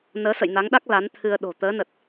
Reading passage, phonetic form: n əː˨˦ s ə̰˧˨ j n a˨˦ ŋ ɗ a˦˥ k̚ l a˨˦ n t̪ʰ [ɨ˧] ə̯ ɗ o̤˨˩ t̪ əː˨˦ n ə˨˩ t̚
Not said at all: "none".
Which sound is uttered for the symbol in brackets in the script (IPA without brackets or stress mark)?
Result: ɨ˧